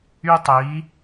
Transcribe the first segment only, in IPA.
y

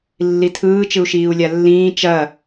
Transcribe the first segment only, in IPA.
lː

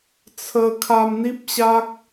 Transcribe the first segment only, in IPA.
t͡sʰ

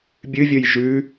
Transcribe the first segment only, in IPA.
bʲ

